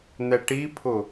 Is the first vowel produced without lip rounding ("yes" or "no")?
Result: yes